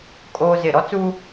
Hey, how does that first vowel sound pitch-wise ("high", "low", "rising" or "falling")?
high